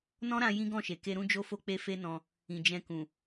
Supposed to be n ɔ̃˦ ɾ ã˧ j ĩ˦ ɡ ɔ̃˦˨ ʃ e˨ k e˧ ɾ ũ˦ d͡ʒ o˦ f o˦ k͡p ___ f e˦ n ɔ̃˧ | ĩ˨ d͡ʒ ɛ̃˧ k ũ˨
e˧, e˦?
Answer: e˦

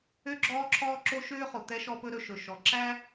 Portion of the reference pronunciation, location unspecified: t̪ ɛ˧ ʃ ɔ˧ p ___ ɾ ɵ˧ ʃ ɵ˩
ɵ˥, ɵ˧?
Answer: ɵ˧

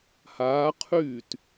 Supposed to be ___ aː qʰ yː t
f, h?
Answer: h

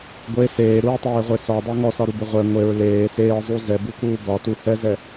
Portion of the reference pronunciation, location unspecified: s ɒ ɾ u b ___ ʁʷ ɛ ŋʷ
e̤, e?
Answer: e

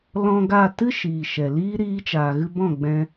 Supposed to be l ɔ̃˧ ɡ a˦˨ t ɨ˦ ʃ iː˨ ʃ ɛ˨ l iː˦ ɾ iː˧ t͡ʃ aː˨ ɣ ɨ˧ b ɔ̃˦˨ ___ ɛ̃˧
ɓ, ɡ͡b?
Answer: ɡ͡b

